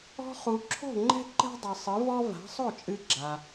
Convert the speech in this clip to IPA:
ɔ̤˧ χ u˩ ǁʰ o̤˥˩ ŋ͡ǃ ɛ̤˥ ǃ ɛ̤˥ dˤ ɨ˩ sˤ ɨ˩˥ v ɔ˥ v a̤˩˥ sˤ o˥˩ t͡ʃʼ ɨ˧ ɡ͡ǁ a˩

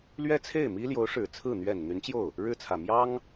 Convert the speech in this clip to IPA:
l ɥ ɛ˥ t͡sʰ e˥˩ ɪ̯ m i˥ l j o˧˥ ʊ̯ ʂ ɻ̩˨˩ t͡sʰ ɹ̩˥˩ n̪ ɥ ɛ˨˩ n n̪ y˧˥ n t͡ɕ j o˥˩ ʊ̯ | ɻ ɻ̩˥˩ t͡sʰ ä˨˩ m j ɑ˥ ŋ

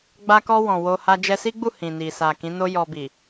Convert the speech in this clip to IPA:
ɡ͡b a˧ k ɔ˧ w ɔ̃˨ w o˧ h a˧ d͡ʒ ɛ˧ s i˦ ɡ͡b u˦˨ h ĩ˨ n i˨ s a˨ k ĩ˨˦ n o˦ j ɔ˧ b i˨

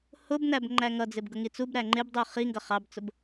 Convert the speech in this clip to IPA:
h ʊ b n æ b ŋ͡ǃ æ ŋ ʌ d͡z ɪ b ɡ ʊ ŋ i t͡s u b ɾ æ ŋ͡ǃ ɪ b dˤ u χ i ŋ ɡ ʌ χ ɑ b t͡s ʊ b

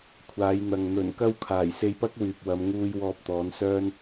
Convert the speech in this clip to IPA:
kʷʰ aː˨˧ j n̪ ɐ˨ ŋ n̪ ɵ˨˩ n k ɐ˧ w kʰ aː˨˩ j s e˧ j p ɐ˥ k̚ w yː˨ p̚ w ɐ˨˧ m ŋ uː˧ j w ɔː˧ p̚ t̪ ɔː˨˧ n s œː˥ n

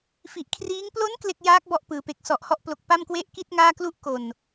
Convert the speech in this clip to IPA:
f i˨˩ ʔ kʰ r iː˦˥ ŋ p l o˦˥ n k l e˥˩ k̚ j aː˦˥ k̚ b ɔ˦˥ ʔ p ɯː˩˦ p e˨˩ k̚ s ɔ˨˩ ʔ h ɔ˦˥ ʔ p l o˨˩ k̚ p a˥˩ m k w e˥˩ ʔ k i˥˩ t̚ ŋ aː˥˩ k l u˥˩ ʔ k o˨˩ n

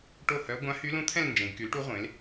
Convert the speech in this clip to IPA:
ʈ o˥˨ h œ˧˥ ɡʷ ã˧˥ h y˧˥ l ũ˧˥ t̪ʰ ɛ̃˥˨ l n d͡ʒ ẽ˩˧ ɡ k y˩˥ l ʈ u˧˥ ʁʷ ẽ˩˥ l

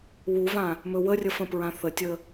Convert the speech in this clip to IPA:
w u v ã | m ɵ w ə rʲ ə f ə̃ p ɹ ã θ ə tʲ ə

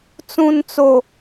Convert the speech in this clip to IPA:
t͡s ũ˨ n t͡s o˨

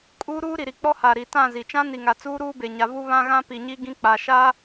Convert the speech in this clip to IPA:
kʼ uː˦ ɾ uː˦ ɾ i˨ ɾ i˨ k͡p ɔ˦ h a˨ ɾ i˨ t ã˦˨ z i˨ t͡ʃ ã˦ n i˨ ŋ a˨ t͡s uː˦ ɾ uː˦ b e˨ ɲ a˨ v u˦ β ã˦ ɣ ã˦ p i˨ ɲ i˦ ɡ ĩ˦ k͡p a˨ ʃ a˦

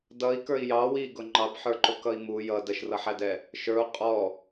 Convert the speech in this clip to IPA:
d ʌ i̯ k ə˞ i̯ j ɑ w i ɡ ʊ ŋ͡ǃ ɑ b ħ ə˞ ǃ ʊ k ʌ i̯ m u j ʌ d ə ʃ r ʌ ħ æ d ɛ | ʃ ə˞ u̯ qʼ ɔ

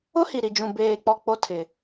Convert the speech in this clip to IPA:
ʊ˦ h i˨ ɾ i˨ d͡ʒ ũ˨ b eː˨ k͡p ɔ˨ k͡p o˦ tʰ ɪ˨

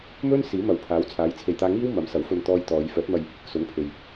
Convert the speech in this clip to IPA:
m ɵ˥ n s iː˨˥ m ɐ˨ w pʰ aː˨˥ w t͡sʰ aː˨˥ j t͡sʰ e˨ j t̪ aː˧ ŋ iː˥ w m ɐ˨˥ m s ɐ˨˥ w f ɵ˧ n t̪ ɔː˧ j t̪ ɔː˨˧ j f œː˨˥ t̚ m ɐ˧ j | s ʊ˨˥ ŋ pʰ e˨ j

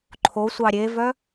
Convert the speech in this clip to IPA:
ǃʰ o sʷ ɑ ɾʲ e v œ

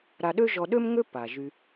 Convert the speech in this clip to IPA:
ɾ a˨ ɗ ø˦ ʒ ɔ˨ ɗ ø˦ m ŋ ø˦ p a˩ ʒ y˨

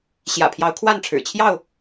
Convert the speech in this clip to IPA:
ɕ j ä̰˨˩ pʰ j ɑ˨˦ ʊ̯ kʰ w a˥˨ n ʈ͡ʂʰ ɻ̩˨˩ t͡ɕʰ j ɑ˥˨ ʊ̯

